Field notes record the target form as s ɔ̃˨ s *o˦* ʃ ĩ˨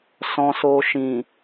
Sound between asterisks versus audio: incorrect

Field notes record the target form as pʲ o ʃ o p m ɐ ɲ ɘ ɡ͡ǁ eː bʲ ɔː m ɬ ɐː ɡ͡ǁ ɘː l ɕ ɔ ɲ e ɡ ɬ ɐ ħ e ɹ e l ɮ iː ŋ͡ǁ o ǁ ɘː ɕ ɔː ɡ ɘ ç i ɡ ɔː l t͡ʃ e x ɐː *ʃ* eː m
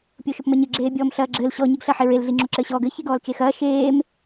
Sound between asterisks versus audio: correct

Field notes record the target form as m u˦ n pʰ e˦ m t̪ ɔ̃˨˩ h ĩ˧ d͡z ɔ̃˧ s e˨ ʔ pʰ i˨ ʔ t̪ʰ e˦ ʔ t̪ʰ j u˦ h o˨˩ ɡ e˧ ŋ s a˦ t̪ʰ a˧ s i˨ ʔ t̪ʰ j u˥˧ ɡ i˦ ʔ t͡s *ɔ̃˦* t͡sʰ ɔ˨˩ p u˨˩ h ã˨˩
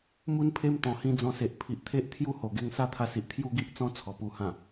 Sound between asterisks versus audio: correct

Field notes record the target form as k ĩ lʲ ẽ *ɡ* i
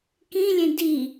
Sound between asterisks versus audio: incorrect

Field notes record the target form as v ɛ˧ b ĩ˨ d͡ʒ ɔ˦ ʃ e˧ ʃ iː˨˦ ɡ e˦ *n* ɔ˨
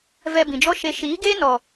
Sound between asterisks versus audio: correct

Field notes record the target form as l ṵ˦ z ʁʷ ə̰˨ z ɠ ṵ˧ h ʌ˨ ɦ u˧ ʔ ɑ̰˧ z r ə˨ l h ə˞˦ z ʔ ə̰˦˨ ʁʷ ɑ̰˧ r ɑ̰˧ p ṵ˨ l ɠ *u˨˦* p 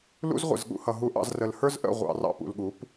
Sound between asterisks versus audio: correct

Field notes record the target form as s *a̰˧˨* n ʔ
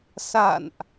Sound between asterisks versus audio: correct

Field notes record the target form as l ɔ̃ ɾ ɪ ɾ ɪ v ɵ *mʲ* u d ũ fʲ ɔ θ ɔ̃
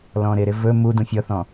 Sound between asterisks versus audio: incorrect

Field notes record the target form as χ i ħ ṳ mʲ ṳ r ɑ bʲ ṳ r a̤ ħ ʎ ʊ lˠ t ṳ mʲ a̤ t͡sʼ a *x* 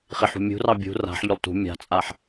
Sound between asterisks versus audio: incorrect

